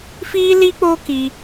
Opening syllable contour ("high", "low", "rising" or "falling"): high